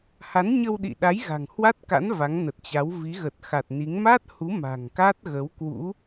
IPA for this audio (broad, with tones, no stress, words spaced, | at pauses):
ha˨˦nɲə˧wɗḭ˧˨ɗa˨˦j ɣa̤˨˩ŋhwa˦˥t̚ka̰˧˥n va˨˦ŋnə˨˩t̚t͡ɕa˨˦w vi˨˦ɣə˨˩t̚xa˨˩t̚ni˨˦ŋ ma˦˥t̚hu˨˦ ma̤˨˩ŋka˦˥t̚ ɣə˨˦wkwṵ˧˥